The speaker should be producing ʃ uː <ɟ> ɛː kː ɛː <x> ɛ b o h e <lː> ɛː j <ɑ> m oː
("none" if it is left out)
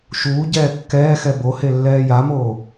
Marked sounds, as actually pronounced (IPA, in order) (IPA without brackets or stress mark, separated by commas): ɟ, x, lː, a